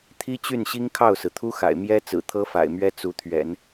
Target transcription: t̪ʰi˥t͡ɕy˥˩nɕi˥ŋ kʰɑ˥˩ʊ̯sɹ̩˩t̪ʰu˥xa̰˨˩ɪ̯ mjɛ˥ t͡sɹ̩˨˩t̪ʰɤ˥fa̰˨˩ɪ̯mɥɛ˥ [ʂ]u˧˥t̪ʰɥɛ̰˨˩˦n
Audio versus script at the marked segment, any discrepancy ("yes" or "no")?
yes